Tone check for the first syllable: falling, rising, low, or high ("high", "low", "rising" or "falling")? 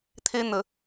high